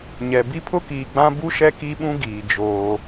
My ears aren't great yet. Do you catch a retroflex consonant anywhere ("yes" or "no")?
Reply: no